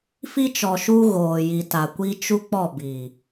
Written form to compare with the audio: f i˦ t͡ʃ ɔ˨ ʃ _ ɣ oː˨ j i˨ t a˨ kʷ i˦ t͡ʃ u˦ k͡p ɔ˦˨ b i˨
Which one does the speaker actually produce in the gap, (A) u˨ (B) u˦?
B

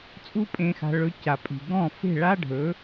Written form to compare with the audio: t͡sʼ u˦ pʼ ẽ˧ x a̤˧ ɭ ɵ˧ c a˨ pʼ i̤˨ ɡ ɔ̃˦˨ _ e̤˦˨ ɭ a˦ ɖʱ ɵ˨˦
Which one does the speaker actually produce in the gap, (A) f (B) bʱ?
A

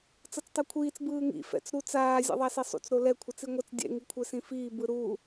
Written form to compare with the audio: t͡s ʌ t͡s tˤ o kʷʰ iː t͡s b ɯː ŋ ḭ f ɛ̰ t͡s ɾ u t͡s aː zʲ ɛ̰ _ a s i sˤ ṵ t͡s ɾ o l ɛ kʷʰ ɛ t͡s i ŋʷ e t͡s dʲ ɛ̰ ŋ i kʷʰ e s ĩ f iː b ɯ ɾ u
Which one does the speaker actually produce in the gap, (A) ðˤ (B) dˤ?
A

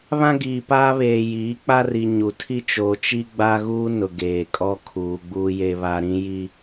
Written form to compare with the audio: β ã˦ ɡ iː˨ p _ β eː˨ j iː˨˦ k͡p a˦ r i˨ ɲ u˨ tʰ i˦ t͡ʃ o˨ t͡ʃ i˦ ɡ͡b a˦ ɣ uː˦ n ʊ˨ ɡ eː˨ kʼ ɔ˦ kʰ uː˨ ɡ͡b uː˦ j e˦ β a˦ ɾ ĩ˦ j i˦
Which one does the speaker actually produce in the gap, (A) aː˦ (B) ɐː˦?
A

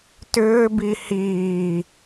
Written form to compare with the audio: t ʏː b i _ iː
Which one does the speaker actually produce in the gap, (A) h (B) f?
A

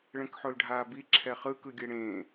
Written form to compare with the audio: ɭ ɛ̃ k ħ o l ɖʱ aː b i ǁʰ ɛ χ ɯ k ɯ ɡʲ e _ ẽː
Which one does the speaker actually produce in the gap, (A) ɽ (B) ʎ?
A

